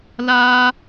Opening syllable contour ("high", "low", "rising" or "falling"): high